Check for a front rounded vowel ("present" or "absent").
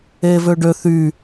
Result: present